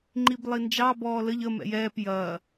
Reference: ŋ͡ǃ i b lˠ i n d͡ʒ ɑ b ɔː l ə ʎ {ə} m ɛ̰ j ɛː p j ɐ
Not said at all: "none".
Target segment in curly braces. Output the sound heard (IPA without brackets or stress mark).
ə